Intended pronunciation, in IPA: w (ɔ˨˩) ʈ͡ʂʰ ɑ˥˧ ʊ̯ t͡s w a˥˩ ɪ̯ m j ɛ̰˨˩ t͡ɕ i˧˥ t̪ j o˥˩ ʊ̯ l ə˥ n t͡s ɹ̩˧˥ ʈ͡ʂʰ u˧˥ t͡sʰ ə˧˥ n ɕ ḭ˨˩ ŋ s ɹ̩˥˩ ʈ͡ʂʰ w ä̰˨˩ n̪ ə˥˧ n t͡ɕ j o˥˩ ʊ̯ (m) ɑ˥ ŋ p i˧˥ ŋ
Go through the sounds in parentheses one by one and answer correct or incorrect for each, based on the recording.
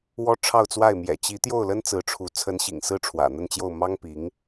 incorrect: ɔ˥, correct

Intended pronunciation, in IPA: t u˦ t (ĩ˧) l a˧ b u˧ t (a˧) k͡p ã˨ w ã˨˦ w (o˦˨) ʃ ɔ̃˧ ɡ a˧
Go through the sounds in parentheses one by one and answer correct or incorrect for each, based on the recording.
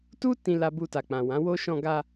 correct, incorrect: a˨, incorrect: o˦

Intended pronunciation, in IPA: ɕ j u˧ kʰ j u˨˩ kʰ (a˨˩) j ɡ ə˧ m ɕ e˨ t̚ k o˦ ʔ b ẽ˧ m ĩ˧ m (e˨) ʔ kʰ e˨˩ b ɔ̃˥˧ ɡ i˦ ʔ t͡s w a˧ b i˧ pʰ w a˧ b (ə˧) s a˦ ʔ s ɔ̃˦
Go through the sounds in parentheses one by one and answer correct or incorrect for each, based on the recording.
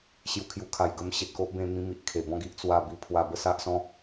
correct, incorrect: i˨, incorrect: ə˥˧

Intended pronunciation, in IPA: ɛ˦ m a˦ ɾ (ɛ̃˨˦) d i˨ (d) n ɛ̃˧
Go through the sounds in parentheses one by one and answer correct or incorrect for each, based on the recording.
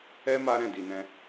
incorrect: ɛ̃˦˨, incorrect: none

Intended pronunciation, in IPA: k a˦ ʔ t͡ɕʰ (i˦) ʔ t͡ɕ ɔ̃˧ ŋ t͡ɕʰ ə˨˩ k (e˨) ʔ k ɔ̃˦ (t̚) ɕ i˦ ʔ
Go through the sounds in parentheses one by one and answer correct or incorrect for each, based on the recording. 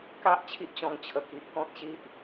correct, incorrect: i˨, correct

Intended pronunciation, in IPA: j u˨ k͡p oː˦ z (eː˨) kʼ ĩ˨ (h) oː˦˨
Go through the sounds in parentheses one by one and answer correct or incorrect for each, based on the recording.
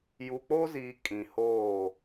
incorrect: iː˨, correct

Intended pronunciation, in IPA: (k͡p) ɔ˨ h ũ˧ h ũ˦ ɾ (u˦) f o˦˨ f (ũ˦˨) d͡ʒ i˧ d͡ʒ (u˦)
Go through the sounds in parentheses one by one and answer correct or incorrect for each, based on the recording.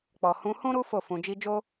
correct, correct, incorrect: ũ˧, incorrect: o˦

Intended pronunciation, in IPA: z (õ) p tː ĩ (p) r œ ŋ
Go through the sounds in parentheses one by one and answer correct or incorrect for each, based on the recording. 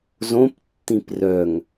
correct, correct

